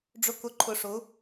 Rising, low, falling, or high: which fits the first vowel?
low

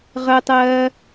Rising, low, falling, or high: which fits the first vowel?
high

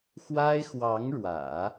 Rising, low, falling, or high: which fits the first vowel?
high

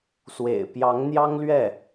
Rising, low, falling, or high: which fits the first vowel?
low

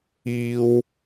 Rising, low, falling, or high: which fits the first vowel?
high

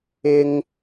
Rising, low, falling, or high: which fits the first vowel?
high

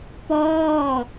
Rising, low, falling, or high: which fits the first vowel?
falling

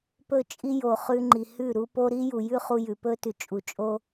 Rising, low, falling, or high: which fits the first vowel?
falling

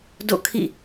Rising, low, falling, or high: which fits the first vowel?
falling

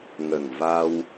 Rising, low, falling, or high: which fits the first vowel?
low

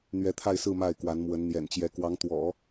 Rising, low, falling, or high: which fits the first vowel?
rising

